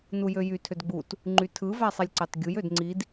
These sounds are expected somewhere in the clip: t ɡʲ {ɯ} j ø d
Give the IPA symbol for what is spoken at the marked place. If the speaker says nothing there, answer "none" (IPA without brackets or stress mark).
u